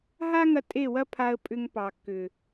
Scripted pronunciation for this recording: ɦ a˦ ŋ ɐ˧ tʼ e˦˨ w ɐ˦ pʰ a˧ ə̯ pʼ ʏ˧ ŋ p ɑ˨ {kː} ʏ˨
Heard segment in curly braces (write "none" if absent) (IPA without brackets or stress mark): kː